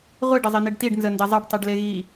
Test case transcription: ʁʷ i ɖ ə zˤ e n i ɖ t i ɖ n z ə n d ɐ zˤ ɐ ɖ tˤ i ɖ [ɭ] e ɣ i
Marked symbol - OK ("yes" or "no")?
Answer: no